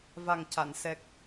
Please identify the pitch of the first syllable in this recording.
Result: low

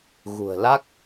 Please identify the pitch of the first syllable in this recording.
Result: low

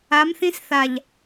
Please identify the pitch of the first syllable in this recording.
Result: rising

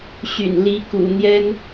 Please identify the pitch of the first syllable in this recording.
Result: low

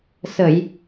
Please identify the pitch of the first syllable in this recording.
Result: low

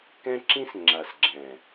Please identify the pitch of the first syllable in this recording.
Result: high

